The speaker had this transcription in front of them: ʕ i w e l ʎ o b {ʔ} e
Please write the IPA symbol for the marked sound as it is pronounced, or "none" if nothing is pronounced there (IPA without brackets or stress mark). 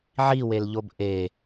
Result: ʔ